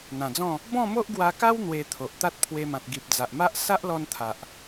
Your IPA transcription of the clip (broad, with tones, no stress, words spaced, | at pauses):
n̪ã˨˩d͡zɔ̃˥˧ | bɔ̃˥˧mo˦ʔɡwa˧ka˦w n̪we˧t̪ʰo˨ʔ t̪a˦t̚pʰwe˧mã˨t̚ ɡi˨p̚d͡za˨ʔma˦ʔ sa˦ʔlɔ˧n t̪ʰa˨ʔ